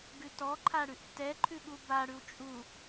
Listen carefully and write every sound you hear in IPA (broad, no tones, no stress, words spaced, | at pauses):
ɡʉtɔǃʰaɽʉʔ tɛǃʰʉɠu baɽʉw t͡ʃʼu